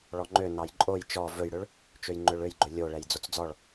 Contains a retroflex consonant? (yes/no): yes